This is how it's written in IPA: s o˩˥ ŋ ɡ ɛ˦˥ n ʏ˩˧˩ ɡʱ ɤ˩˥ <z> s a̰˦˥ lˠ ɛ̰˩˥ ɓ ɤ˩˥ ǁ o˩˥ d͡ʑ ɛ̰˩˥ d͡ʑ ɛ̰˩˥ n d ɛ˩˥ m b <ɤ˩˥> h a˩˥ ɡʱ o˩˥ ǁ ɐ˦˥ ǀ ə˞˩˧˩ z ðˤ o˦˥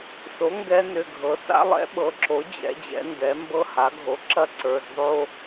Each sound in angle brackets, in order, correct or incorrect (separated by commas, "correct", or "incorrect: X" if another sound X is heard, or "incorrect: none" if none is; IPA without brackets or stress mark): incorrect: none, incorrect: ɤ˦˥